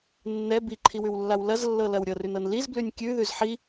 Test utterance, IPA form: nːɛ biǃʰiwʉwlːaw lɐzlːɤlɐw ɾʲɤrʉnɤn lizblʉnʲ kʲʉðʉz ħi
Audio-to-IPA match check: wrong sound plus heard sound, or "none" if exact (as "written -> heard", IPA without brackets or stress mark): none